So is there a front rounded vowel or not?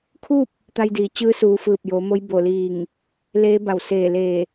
no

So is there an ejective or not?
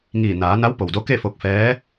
no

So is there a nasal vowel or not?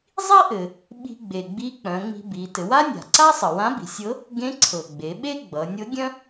yes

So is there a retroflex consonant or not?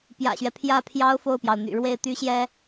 yes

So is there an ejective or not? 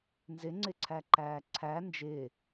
no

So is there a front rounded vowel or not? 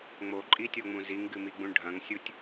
no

